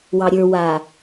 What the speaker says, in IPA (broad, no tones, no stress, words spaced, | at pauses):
wɑɾʲə˞waː